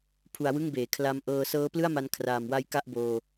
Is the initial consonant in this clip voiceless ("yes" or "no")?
yes